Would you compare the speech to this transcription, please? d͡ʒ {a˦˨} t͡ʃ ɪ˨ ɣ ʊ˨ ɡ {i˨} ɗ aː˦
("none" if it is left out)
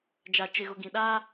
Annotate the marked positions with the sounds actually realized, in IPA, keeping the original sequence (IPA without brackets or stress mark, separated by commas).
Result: a˨, ĩ˨